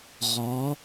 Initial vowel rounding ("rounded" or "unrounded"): rounded